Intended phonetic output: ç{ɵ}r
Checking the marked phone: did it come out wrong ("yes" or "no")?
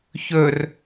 no